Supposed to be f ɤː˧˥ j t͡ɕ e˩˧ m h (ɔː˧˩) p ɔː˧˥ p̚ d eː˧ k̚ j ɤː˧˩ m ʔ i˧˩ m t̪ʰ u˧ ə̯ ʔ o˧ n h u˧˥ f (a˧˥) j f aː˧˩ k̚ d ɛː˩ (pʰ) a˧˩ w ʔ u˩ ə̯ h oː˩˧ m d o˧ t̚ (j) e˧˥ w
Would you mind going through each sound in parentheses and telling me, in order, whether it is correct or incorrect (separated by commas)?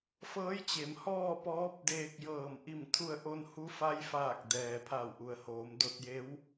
incorrect, correct, correct, correct